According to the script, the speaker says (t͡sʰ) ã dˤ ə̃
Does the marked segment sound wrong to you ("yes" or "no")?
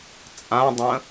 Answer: yes